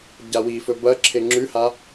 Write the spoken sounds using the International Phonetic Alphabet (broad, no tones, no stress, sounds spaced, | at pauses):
ɟ a w i f ɵ b ɐ ǁʰ e ŋ͡ǁ ʉ h a